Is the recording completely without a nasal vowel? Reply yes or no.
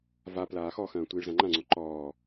no